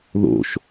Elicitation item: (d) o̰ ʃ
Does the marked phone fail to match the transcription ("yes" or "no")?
yes